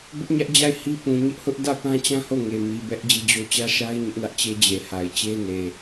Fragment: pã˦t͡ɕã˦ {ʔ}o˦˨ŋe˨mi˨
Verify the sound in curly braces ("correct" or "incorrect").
incorrect